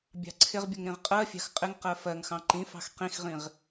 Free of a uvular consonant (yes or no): no